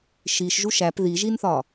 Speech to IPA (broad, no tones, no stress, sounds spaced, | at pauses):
ʃ i ʃ ʒ u ʃ æ p ð i ʒ i n θ ɒ